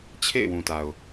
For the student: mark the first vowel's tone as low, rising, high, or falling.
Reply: falling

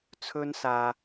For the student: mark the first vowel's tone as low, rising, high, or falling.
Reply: high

